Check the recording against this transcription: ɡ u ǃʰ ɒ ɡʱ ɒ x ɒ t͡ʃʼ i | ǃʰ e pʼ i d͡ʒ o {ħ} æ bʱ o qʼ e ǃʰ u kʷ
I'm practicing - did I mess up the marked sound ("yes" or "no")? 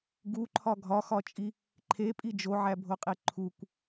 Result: yes